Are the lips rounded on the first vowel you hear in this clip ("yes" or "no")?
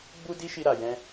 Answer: yes